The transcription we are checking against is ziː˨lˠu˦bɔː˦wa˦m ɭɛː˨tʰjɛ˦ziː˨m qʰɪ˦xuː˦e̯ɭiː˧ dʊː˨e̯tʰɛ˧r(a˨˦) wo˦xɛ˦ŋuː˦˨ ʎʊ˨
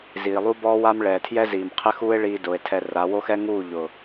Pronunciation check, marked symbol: correct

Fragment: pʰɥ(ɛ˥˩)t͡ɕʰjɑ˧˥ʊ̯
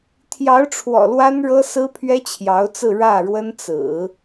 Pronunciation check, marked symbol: incorrect: ɛ˥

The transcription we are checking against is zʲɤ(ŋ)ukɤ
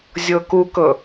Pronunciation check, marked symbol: incorrect: k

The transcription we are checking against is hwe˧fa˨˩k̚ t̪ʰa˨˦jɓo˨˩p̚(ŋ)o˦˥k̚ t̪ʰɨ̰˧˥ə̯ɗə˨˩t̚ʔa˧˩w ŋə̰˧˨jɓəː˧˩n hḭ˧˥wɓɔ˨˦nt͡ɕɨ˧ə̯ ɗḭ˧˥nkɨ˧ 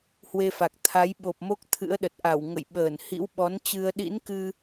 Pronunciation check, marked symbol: incorrect: m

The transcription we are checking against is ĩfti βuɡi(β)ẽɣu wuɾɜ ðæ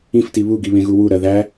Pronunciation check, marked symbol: correct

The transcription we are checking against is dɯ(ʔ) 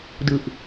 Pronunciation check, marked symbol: correct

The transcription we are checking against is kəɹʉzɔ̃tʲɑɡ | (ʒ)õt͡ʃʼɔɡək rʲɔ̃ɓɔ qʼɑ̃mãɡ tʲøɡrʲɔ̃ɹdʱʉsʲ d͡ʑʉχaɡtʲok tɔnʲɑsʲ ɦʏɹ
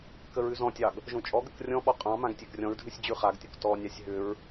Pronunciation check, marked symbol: correct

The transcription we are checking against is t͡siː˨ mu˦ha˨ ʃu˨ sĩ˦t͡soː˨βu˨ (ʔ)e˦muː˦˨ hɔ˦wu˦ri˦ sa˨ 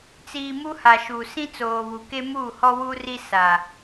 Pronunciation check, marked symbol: incorrect: k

